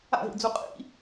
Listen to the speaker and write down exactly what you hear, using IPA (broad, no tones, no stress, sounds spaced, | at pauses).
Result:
a̰ ɦ ḭ d͡z u qʼ ḭ